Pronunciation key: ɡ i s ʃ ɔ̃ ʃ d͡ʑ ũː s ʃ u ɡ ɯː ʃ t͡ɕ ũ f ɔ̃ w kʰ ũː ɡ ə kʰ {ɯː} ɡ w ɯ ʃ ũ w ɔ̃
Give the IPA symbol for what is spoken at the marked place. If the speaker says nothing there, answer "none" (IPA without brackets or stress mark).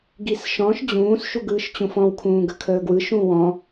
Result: əː